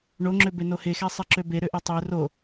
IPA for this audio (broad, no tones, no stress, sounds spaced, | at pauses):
ɳ o ŋ͡ǁ ø b e n o h e x ɛ sˤ e ǁ ø b e ɾ ø ʔ ɛ tˤ ø r o